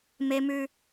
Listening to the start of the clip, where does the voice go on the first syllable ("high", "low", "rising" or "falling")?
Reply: high